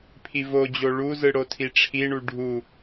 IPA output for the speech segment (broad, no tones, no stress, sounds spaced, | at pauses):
pʰ i v o d͡ʑ o ɭ u z ɯ ɽ o tʰ i ʈ͡ʂʰ i ɳ u ɖʱ u